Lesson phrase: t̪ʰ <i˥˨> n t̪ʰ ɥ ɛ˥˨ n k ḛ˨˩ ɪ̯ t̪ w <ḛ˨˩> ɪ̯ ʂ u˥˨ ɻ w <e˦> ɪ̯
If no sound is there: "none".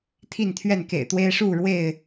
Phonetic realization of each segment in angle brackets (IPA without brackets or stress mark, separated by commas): i˥˨, e˦, e˥˨